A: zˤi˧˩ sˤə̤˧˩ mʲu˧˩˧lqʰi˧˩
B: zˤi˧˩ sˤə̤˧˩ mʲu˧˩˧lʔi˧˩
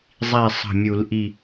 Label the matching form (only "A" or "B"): B